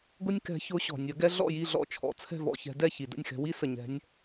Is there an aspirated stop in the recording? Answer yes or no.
yes